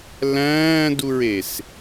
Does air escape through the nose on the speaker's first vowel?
yes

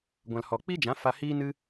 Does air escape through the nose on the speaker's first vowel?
yes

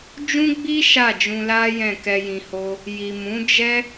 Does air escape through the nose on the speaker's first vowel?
yes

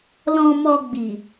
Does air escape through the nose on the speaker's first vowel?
yes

